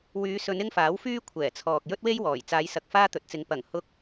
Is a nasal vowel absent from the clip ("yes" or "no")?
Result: yes